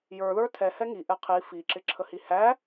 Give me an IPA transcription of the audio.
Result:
j ə˞ ð ə˞ tʰ ɛ h ɛ ŋ i ʔ ɛ qʰ i f i ǁ ɪ ǁʰ ə h i h æ

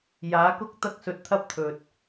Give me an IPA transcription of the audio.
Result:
j aː˨˧ k ʊ˧ k̚ t̪ ɐ˧ k̚ s ɵ˨˥ t̚ t̪ʰ ɐ˧ p̚ t̪ʰ ɵ˨ t̚

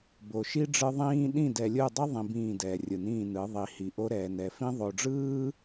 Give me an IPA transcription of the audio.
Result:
b o˨ ʃ i˦ ɖ͡ʐ ɯ˦ ðˤ ĩː˦ ɗ ĩ˦˨ d ɛ˨ lʲ ɯ˦˨ dˤ i˦ ðˤ ĩ˨ b ĩː˦˨ d ɛː˨ rʲ ɯ˨ n ĩː˦˨ n ɯ˨˦ ðˤ i˨˦ h i˨ ʔ o˦ ɾ ɛː˨ n ɛ˨ f ĩ˦ ðˤ o˨ ɖ͡ʐ ɯː˦

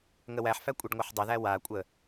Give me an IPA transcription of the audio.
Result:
ŋ ə w æ ħ f æ kʷʼ e ɖ ŋʷ a ħ dˤ ə ð æ w a kʷʼ ə

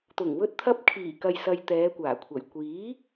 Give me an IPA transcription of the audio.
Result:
t̪ ʊ˨˩ ŋ w ɵ˧ t̚ t̪ʰ ɐ˧ p̚ kʰ iː˨˩ k ɐ˨ j s ɐ˨ j t̪ ɛː˨˧ kʷ aː˨˩ kʷʰ ɐ˨˩ j kʷ iː˨˥

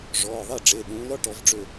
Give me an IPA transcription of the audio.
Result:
ʐ ɔː˩˧˩ ðˤ e˥˩ ɖ͡ʐ e˩˧˩ ɗ ũː˨˦ l ɔ˥ ʈ ɔ˨˦ v ɖ͡ʐ ø˥˩

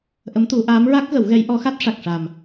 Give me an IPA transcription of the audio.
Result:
ʔ ə˧˥ m t̪ u˨˩˦ ʔ aː˧˥ m ɹ a˦˥ k̚ ɣ ə˨˩˦ w ɣ ɛ˧˥ j ʔ ɔ˧˥ x a˦˥ t̚ ʂ a˨˩ k̚ ʂ a˨˩ m

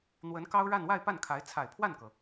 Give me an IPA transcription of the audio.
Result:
n̪ w ə˧˥ n k ɑ˥ ʊ̯ ɻ a˥˧ n w a˥˧ ɪ̯ p a˥˩ n kʰ a˧˥ ɪ̯ t͡sʰ a˨˩ ɪ̯ pʰ w a˥˩ n k ɤ˩

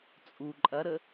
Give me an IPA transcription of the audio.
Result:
t͡sʼ u ǃʼ ɐ ɾ ə

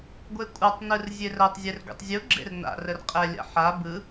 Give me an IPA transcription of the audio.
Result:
ɡʷ e kʷʼ a tˤ n ɯ r zʲ e r ɜ tˤ zʲ e r ɡʷ ḛ tˤ zʲ u ɡ͡ǁ ḛ r n a̰ r ə r qʼ ɛ lʲ a̰ ħ a b ɯ

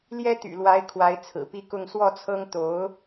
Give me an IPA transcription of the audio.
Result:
l j ɛ˥ t̪ y̰˨˩ l w a˧˥ ɪ̯ kʰ w a˧˥ ɪ̯ t͡sʰ ɹ̩˨˩ p i˥˧ k ʊ˥˧ ŋ s w ɔ˥˩ t͡sʰ ɤ˥ ŋ t̪ o˧˥ ʊ̯

